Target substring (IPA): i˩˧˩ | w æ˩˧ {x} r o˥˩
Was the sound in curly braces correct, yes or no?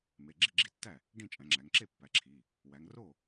no